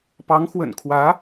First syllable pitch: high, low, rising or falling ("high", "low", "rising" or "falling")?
rising